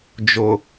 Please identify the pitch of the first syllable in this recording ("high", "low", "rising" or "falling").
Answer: low